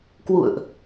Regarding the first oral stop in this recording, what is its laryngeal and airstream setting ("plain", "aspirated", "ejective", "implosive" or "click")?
plain